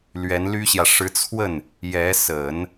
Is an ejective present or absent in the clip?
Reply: absent